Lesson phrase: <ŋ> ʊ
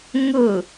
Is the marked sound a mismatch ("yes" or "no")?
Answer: no